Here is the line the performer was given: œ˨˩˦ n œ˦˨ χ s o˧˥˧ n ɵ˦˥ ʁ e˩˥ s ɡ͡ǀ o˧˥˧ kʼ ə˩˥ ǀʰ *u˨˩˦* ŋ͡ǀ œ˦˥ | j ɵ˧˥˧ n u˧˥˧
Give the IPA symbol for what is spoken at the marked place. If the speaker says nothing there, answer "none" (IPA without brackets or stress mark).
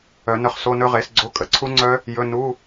u˦˥